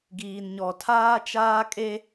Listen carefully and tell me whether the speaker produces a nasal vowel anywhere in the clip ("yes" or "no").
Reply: no